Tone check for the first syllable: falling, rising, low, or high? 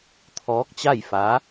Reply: rising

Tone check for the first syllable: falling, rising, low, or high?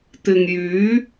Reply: low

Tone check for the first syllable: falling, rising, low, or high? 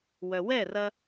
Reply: low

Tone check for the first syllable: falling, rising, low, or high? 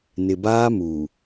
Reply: low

